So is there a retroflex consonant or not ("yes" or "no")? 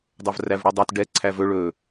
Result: yes